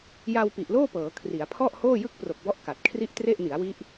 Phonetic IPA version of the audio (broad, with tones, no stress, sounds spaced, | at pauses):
j a˧ w p i˨˩ ʔ l oː˥˩ p ɤː˩˦ kʰ r i˩˦ a̯ pʰ ɔ˥˩ ʔ h oː˥˩ j ɯ˥˩ k̚ p r o˨˩ k̚ b ɔ˦˥ ʔ k a˨˩ t̚ kʰ r i˥˩ ʔ t r e˥˩ ʔ n i˩˦ a̯ w i˦˥ ʔ